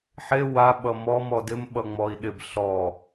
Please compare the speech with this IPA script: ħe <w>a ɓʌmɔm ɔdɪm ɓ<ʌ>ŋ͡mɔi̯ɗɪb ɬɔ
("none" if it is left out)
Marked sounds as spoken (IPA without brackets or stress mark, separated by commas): w, ʌ